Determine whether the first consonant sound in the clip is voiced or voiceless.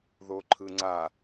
voiced